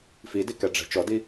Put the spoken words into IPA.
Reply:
f i d i k ɛ ɖ͡ʐ ɛ̤ t͡ʃ ɔ d i

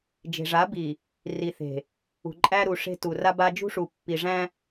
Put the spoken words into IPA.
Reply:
d͡ʒ e̤˨ ʐ a˨˦ b i˨ | r i˨ θ e̤˨ | ṳ˨ ǃʼ æ˦ ɾ u˨ ʂ e̤˦ t u˨ r a˦ b a˦ d͡ʒ ṳ˦ ʂ u˨ pː i˨ ʐ æ̃˦

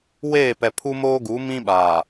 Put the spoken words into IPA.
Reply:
w eː˦˨ p ɛ˨ pʰ u˦ m oː˦ ɡ u˨˦ m ĩ˦ ɓ aː˨

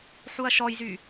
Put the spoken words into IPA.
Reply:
ħ u ɐ̯ ʃ ɔ j z y

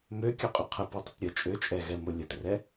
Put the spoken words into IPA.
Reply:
m ø kʲ o qʼ ø qʰ ə p o tˤ ə t ɾʲ ə t͡ʃʼ ø t͡ʃʼ ɛ ɣ ɛ m o lʲ ə t r ɛ

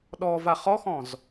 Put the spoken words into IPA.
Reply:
ɗ ɔ v a χ ɔ x ɔ̃ z

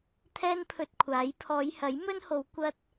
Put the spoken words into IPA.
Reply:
t̪ʰ ɛː˥ n pʰ ɵ˧ t̚ kʷʰ aː˨˥ j pʰ ɔː˨˧ j h ɐ˨˥ j m ɵ˥ n h o˨˧ w kʷ ɐ˥ t̚

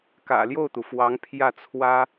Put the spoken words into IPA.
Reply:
k ä̰˨˩ l j o˥˩ ʊ̯ t̪ u˩ f w ɑ˧˥ ŋ pʰ j ä˥˩ t͡sʰ w ä˥

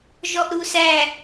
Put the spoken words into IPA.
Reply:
ʒ ɔ ʔ ɾ u s æ

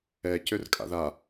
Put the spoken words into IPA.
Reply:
ɛ c ø r kʼ a̰ ð a

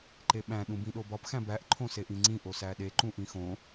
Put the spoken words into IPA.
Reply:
ǃ e ɓ æ̃ ɗ ũ b ĩ ɗ o b ɒ p x æ̃ b æ ʔ ǃʰ õ s e ʔ ĩ ŋ͡ǀ ĩ ʔ o s æ ɗ e ǃ ũ ʔ ĩ x õ

